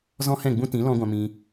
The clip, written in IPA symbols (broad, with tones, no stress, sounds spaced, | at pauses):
z ɔ̃˦ h ɛ̃˦˨ ɡ͡b ũ˦ t ĩ˨˦ l ɔ̃˦ ɡʷ ã˧ m ĩ˧